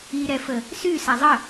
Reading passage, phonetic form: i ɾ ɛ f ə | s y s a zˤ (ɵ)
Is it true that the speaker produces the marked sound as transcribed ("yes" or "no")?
no